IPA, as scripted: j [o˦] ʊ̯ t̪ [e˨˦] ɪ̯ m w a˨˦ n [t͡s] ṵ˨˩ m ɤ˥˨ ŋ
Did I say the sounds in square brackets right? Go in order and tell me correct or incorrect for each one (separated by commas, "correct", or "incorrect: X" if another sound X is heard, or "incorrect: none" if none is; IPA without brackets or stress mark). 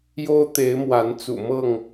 correct, correct, correct